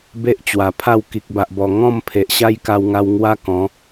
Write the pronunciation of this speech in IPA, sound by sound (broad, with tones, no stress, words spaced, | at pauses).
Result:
be˦ʔt͡ɕwa˨˩pʰa˥˧w ki˨k̚ba˨ʔbɔ˨˩ ŋɔ̃˥˧m pʰe˨ʔɕa˦jka˧wŋa˧w ŋwa˦kɔ̃˨˦